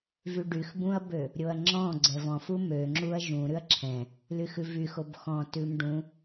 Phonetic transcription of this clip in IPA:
vyɖyxbũɐ̯bø | ɾʲoɐ̯ŋ͡ǁɔ̃ ɡ͡ǀɛvɔ̃fu møŋ͡ǁuɐ̯ ʒũɾʉɐ̯ ǁʰɛ̃ | lyxʉvyxob xɔ̃ tʉmɖũ

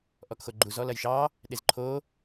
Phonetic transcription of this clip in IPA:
ʔɔkxoɡ͡ǃuz ɔlɐjʃɑː | ɗezǃʰoː

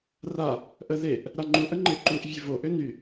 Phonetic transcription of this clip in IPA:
ra | ʔəðeʔ | ɾaŋ͡ǃuʔə ŋ͡ǃeǃuʔ vʲøvoʔø ny

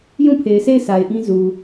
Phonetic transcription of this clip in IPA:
jũ˦˨pʰe˨ɪ̯se˦˨ɪ̯ sa˨ɪ̯ʔĩ˦ zu˨

